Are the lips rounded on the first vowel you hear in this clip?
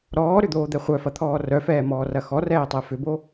yes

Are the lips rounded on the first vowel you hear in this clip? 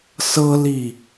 no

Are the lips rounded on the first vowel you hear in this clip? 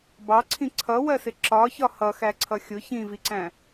no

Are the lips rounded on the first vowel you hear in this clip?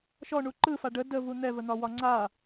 yes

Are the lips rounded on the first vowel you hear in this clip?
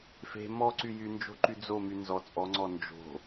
no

